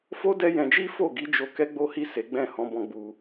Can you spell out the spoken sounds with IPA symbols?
f o˦ d ɛ˦ j ɛ̃˧ d͡ʒ i˦ f o˦˨ ɡ i˨˦ d͡ʒ o˧ k ɛ˦ ɡ͡b o˦ h i˦˨ s e˨˦ ɡ͡b ɛ̃˦˨ h ɔ̃˧ b ɔ̃˧ ɡ͡b u˧

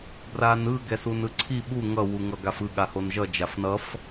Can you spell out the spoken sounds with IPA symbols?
b r a n ɯ ɡ ɛ s u n ɯ ǀʰ i ɓ u ŋ ʌ w u ŋ ʌ ɡ a f ɯ ɠ a h o n ʒ ʌ d͡ʒ a f n ʌ f

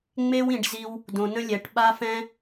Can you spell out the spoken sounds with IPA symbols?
ŋ͡m e˦ w ĩ˨ ɖ z i˧ w | d õ˨ n ə̃˦ lʲ ɛ˨ ʈ ɓ a˦ f ɛ̃˦

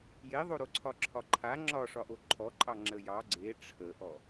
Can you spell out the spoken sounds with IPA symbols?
j e ðˤ o ɾ o ǀʰ ɒ ǁʰ ɒ ǃʰ a ŋ͡ǁ ɒ ʂ ɒ ʔ o ǃʰ ɔ ǃʼ ɑ ŋ͡ǁ ə j ɑ ɡ͡ǀ e ʈ͡ʂʰ ə ʔ ɔ

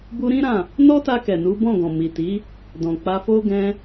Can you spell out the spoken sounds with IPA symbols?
b u˧ ɾ ĩ˦ ɾ ã˦˨ | n ɔ˦ t a˧ k ɛ˨ n u˨˦ b ɔ̃˦˨ ɡ ɔ̃˨ m i˨ t i˨˦ | d ɔ̃˨ k͡p a˧ f o˦ ɡ ɛ̃˧

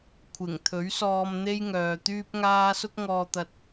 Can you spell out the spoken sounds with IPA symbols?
kʷʰ ɪ˨˩ ŋ t̪ʰ ɵ˨˥ ɥ s ɔː˧ m n̪ e˥ j ŋ œː˨ t̪ yː˥ p̚ ŋ aː˥ s ʊ˥ k̚ ŋ ɔː˧ t̪ ɐ˧ t̚

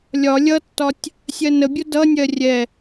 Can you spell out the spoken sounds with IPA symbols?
lʲ ɒ lʲ ʌ tː ɒ tʲ | sʲ ɜ n ə bʲ ʊ d ʌ nʲ ɜ rʲ ɛ

